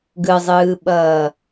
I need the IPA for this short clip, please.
ɡɯzˤɯːɓʌː

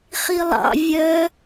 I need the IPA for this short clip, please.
χilˠɑ̰ vʲœ

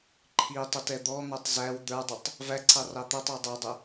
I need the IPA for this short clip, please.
ǃʰitˤʊt ɛd̪ɔn̪ætˤ zæw d̪ə˞dˤʊtˤ | væǀʰɑ rɑt̪ətˤəw dˤædˤɪ

